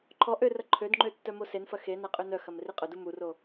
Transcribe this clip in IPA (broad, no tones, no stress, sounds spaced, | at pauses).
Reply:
ǃʰ ɔ ʔ ø r ɐ ǃʰ ø d ŋ͡ǃ ø tː œ m o s e n f ɐ x e n a qʼ ø n œ x ɐ m r i qʼ œ d u m u r o